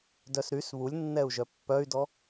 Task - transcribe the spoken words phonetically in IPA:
d œ s ɾ y s β u lʲ nː ɛ u̯ ʒ œ pː œ y̯ d ɔ

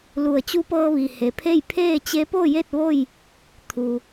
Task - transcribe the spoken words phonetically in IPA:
l u˧˩ ə̯ t͡ɕ u˧˥ p ɤː˧ ʋ i˩ h e˩ pʰ e˥˨ j pʰ eː˥˨ t͡ɕ e˧˥ p o˥˨ j e˥˨ t̚ ʋ o˥˨ j | t̪ʰ u˩

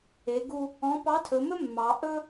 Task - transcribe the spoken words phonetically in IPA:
e˩˧ ɡ u˧ | ɔ̃˧˥ p ɑ˧˥ tʰ ɵ˩˧ m ɵ˥ mː ɑ˩˧ ʔ ɵ˥

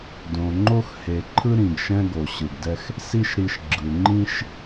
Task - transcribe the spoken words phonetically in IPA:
d õ˨ ŋ͡ǃ o˦ x h e˨ ǃʰ ɯ˦ ɾ ĩ˨ ɡ ʃ ɛ̃˦ ɡ o˨ ɕ ɯ˨ ɡ d ɛ˦ x | s i˦ ʃ ɾ i˧ ʃ ɡ͡ǁ ɯ˨ ŋ͡ǃ ĩ˦ ʃ

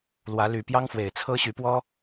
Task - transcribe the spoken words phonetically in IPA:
l w ä˨˦ l y˨˩ p j ɑ˦ ŋ f w e˨˩ ɪ̯ t͡sʰ ɤ˦ ɕ y˨˦ p w ɔ˦

